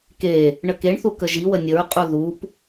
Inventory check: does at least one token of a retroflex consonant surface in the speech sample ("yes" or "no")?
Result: yes